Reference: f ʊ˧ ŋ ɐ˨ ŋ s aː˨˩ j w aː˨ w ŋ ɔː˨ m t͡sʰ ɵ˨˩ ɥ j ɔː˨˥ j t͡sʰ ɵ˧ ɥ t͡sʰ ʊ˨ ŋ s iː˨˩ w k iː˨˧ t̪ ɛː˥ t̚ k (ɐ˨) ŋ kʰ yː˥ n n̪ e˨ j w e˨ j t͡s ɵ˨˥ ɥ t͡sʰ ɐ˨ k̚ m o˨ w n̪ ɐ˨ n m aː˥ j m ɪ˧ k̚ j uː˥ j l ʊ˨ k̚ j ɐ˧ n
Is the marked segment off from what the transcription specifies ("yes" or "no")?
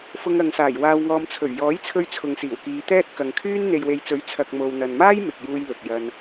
no